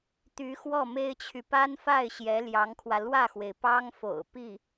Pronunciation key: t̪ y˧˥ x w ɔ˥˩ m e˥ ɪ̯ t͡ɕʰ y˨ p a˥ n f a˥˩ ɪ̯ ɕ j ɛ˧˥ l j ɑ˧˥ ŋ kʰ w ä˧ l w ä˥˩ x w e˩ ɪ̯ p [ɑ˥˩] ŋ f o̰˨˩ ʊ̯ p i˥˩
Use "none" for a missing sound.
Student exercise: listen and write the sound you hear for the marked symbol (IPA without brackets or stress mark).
ɑ˥